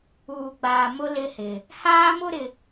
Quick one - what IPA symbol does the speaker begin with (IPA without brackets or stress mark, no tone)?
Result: uː